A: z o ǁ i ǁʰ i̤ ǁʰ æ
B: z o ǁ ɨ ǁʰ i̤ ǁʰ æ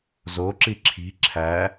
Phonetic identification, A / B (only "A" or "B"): A